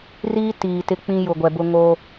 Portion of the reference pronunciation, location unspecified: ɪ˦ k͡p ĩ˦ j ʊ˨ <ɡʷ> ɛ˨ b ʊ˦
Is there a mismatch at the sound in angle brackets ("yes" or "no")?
no